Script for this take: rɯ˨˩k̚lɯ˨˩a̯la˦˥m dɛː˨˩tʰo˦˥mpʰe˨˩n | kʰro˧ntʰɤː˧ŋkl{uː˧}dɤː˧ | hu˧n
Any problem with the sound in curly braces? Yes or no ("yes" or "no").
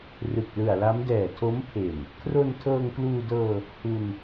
no